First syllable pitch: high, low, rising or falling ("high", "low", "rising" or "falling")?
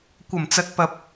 low